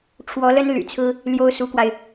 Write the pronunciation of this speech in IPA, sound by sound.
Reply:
ʈ͡ʂʰ w ɔ˧˥ l ə˥ n l y̰˨˩ t͡sʰ ɹ̩˥ | l j o˥ ʊ̯ s u˧˥ k w a˧ ɪ̯

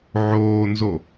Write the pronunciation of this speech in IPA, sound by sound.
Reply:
ʕ oː n z o

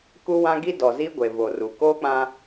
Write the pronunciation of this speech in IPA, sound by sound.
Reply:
k u˦ w ã˦ ɡ i˦ d ɔ˨ z i˦ ɡʷ e˨ v o˨ r u˨ k oː˦ k͡p ã˦

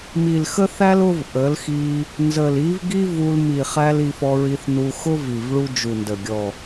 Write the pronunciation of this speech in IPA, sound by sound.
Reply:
m i˨ l x ə˦ θ æ˦ l ʊ˦ v ʔ ə˨˦ l x i˧ | n z ə˨ l i˨˦ v ɡ i˦ v u˧ l m i˨ χ æ˧ l i˧ f ɔ˧ ɹ i˧ θ n u˧ x ʊ˦ v i˨ v ɭ u˧ d͡ʒ u˨ n d ə˨ ɡʲ ɔ˨

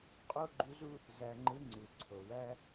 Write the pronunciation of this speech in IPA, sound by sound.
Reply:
qʼ o˥ ɡ͡ǃ u˧˥ z u˥ | z æ˧ ŋ͡ǃ ɯ˧˥ ŋ͡ǀ u˩ ǀʰ o˩ w æ˥

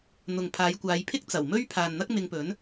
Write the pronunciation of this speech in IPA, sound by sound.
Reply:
n̪ ʊ˨ ŋ pʰ aː˨˧ j kʷ aː˨˧ j pʰ ɪ˥ k̚ t͡s ɐ˨˩ w m ɵ˥ ɥ pʰ aː˨ n n̪ ɐ˥ k̚ m ɪ˧ ŋ p ɵ˨˥ n

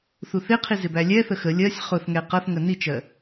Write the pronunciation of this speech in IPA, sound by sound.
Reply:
θ u θ ɪ qʰ i z ɪ b æ lʲ ɛ θ ə x ə lʲ ɜ sʲ χ ʊ θ ŋ ɛ q ʌ θ ŋ ə n i t͡ʃ ɜ

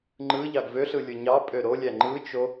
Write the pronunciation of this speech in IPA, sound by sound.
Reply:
ŋ͡ǃ ɯ ʎ ɑ ɡ v ø ɬ ɯ lʲ ɯ ɲ ɑ pʼ ø ɾ o lʲ æ ŋ͡ǃ ɯ t͡ʃ o

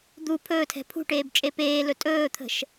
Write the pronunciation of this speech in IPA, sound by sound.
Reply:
d̪ u pʰ ɵː tʰ ɛ̤ pʰ ṳ ʈ eː b t͡ʃʼ e p eː l ɵ tʼ ɵː t̪ʰ ə̤ ʃ

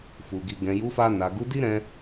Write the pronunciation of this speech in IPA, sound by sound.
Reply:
f u˨ ɡ i˨ ɡ ɛ̃˨ j u˨˦ f a˧ n a˨ ɡ u˨˦ d i˦ ɾ ɛ̃˧

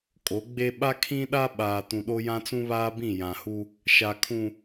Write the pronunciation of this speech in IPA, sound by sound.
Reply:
kʼ o˨˦ ɡ͡b e˦ ɓ a˦ kʰ ĩ˦ ɗ a˦ ɓ aː˨ t ũ˨ ɗ o˦ j ã˦ t͡s ũ˦ β aː˦ b ĩ˦˨ j ã˨ h u˦ | ʃ a˨ kʰ ũ˨

